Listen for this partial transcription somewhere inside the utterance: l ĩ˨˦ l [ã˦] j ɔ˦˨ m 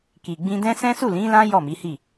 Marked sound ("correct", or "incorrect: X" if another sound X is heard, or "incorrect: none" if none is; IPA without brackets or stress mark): correct